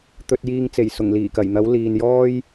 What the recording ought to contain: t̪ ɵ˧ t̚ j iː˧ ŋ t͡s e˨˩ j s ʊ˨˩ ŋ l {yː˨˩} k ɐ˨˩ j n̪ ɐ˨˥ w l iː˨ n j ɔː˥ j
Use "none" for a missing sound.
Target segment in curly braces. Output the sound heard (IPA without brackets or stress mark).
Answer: iː˨˩